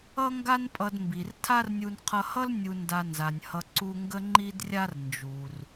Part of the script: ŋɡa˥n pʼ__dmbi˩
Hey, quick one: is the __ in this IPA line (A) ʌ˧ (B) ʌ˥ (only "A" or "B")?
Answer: A